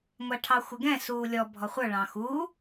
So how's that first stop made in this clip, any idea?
aspirated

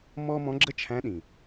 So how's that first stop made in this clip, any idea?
click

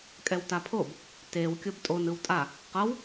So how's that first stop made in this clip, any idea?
ejective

